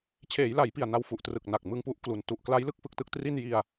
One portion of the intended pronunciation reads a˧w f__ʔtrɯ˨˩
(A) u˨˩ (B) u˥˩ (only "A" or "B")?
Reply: A